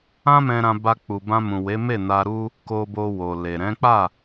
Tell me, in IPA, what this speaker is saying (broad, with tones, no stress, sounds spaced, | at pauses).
ã˦ m ɛ̃˧ ɾ ã˧ b a˧ k͡p u˨ b ã˧ m ũ˨ w e˨˦ m e˦˨ n a˧ ɾ u˦ | k o˧ b o˧ w o˨ l e˨ ɾ ɛ̃˨˦ k͡p a˦˨